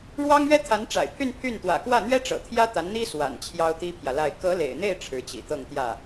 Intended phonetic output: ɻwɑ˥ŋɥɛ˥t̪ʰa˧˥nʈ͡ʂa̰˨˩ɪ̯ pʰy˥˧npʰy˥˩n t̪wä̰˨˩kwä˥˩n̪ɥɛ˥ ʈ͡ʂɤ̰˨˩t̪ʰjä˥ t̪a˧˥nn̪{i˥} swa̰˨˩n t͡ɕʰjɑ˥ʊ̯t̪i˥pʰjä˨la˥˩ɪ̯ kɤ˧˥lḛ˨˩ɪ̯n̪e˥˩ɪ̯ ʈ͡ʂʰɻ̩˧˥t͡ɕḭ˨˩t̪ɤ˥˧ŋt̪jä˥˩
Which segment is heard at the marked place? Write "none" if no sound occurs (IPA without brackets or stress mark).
i˥